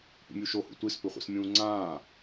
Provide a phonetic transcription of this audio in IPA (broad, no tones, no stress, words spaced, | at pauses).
pṵmʲuʃohṵ tʷispɵχʷḭsmʲũː ŋ͡ǀãː